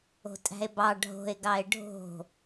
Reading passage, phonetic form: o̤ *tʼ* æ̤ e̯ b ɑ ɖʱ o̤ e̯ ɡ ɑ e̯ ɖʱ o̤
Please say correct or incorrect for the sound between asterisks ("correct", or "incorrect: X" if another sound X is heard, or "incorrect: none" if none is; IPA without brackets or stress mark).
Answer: correct